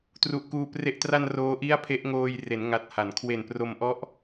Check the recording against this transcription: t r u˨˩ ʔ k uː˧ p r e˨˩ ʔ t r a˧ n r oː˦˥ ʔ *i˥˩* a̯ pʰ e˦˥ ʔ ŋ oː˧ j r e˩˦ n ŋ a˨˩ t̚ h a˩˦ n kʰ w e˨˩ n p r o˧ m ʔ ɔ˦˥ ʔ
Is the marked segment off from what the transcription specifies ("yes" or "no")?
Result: no